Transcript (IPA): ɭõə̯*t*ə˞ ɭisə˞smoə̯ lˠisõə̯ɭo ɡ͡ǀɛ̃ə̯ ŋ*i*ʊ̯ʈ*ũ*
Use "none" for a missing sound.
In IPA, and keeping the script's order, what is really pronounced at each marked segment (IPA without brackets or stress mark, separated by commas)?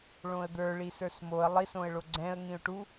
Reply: d̪, ĩ, u